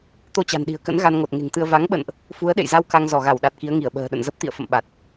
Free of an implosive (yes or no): no